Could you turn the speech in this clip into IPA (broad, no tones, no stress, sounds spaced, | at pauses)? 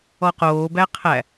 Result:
ɔ q oː b æ qʰ æ